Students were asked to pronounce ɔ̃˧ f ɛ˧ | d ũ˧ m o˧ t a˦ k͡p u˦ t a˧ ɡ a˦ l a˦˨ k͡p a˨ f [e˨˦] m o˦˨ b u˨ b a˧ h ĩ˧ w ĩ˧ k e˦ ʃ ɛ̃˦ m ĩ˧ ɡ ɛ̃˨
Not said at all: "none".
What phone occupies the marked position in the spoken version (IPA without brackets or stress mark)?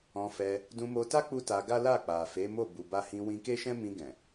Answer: e˨˦